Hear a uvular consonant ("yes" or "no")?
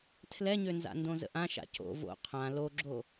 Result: yes